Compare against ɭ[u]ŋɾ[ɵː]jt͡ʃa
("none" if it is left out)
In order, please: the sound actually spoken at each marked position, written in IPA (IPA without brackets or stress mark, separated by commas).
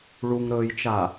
u, ɵː